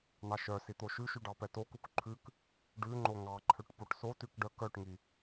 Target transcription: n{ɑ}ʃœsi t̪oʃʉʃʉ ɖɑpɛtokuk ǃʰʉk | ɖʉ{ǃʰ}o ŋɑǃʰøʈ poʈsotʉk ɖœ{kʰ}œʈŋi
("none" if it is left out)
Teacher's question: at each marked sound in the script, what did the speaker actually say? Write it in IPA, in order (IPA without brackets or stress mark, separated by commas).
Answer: ɑ, ŋ͡ǃ, k